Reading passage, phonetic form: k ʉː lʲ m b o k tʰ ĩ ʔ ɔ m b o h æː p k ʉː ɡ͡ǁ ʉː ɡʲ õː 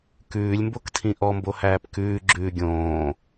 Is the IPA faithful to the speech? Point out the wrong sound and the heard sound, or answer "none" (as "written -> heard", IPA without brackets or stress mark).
none